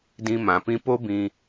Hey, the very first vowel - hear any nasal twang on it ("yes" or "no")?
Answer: yes